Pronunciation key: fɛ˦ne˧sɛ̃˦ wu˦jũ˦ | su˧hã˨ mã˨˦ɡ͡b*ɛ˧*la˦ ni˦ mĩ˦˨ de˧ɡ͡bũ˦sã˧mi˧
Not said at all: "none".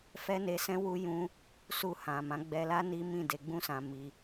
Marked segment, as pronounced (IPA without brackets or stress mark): ɛ˧